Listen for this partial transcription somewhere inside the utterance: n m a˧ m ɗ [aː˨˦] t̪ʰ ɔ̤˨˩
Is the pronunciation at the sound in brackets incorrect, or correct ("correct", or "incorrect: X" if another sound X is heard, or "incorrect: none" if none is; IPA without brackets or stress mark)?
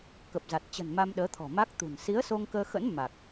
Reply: incorrect: əː˨˦